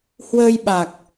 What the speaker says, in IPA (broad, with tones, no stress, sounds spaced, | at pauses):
h w əː˧ j ɓ a˨˩ k̚